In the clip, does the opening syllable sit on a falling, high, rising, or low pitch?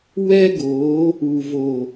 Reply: high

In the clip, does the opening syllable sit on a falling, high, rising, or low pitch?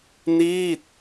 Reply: falling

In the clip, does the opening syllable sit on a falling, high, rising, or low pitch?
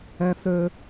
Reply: high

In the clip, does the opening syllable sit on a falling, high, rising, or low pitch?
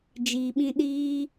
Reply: low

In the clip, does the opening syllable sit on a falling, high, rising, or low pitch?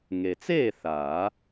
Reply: low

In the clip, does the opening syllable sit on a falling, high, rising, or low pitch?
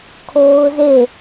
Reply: high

